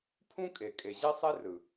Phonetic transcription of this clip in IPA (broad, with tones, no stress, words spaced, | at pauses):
pʰũ˦kʼe˨ kʼe˨ʑe˦sˤe˦ rɯ˨